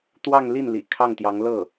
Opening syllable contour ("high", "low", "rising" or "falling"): falling